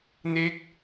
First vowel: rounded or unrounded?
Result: unrounded